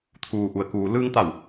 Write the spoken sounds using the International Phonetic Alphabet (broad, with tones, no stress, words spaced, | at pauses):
t̪ʰuː˩ʔu˩ə̯kuː˩ lɯː˧ŋt̪a˧˩w